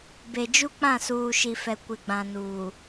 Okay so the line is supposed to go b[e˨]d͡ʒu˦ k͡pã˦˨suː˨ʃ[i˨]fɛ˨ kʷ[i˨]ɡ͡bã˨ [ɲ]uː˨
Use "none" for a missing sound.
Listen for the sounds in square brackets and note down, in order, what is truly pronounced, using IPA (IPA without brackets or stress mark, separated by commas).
e˨, i˨, ɪ˨, n